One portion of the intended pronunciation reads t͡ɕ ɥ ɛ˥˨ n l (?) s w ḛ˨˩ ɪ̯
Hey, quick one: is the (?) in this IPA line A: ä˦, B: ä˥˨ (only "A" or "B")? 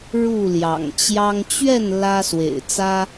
A